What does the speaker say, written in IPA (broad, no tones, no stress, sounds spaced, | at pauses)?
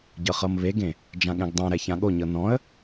ɟ ɤ χ ɤ m β e ɡ ẽ | d͡ʒ ã ɠ ɛ̃ ɡ dˤ ɛ̃ ɾ ɛ ç ã ɠ o ɲ ɤ n ɔ̃ ə̯